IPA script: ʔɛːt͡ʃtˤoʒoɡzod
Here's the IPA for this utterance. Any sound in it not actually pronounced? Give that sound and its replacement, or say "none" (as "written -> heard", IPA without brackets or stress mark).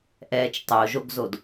none